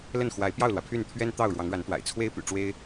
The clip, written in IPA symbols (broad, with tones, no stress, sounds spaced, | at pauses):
l ə˥˩ n x w a˧˥ ɪ̯ p j ɑ˥˩ ʊ̯ l w ä˩ pʰ y˥˩ n t̪ʰ ɥ ɛ˥ n t̪ ɑ˥˩ ʊ̯ ɻ w ɑ˧˥ ŋ ɻ a˧˥ n t̪ w a̰˨˩ ɪ̯ t͡sʰ w e˥ ɪ̯ p y̰˨˩ ʈ͡ʂ w e˥ ɪ̯